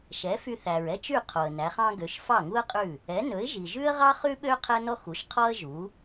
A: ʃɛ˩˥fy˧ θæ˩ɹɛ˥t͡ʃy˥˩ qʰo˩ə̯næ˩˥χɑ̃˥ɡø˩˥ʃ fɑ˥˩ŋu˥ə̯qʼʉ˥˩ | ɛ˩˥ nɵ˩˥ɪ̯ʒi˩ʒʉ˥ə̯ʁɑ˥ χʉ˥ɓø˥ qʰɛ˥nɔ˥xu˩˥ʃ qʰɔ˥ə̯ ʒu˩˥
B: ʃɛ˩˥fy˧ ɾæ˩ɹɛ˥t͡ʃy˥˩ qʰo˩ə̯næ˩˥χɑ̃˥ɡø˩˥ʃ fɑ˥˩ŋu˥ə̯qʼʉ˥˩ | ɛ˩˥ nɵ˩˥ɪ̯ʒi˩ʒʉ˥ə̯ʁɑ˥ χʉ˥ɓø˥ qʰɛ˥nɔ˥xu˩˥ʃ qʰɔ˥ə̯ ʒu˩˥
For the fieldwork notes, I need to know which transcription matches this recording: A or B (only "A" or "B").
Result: A